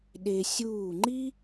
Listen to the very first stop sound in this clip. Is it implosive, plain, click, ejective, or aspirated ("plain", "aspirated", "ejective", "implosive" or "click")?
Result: implosive